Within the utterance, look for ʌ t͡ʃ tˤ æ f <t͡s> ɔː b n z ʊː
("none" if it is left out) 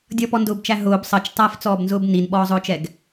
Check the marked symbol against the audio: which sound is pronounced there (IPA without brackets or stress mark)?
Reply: t͡s